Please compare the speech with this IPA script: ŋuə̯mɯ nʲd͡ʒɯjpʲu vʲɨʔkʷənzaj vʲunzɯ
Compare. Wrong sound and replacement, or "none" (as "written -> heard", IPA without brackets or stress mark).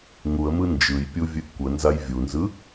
nʲ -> n